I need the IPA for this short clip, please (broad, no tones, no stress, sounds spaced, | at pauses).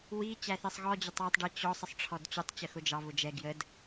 w i t͡ɕ æ θ ɛ sˤ ɣ ɔ d͡ʑ ə tˤ w ɛ tˤ ɖ ɜ t͡ɕ ɔ sˤ ə sˤ ʈ͡ʂʰ ɔ d t͡ɕ ʊ tˤ t͡ɕ ə x ʊ d͡ʒ ɑ β ʊ d͡ʒ ɛ ɡ j ə d